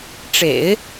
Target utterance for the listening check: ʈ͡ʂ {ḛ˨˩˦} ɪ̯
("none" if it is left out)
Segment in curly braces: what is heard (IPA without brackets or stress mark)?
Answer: ḛ˨˩˦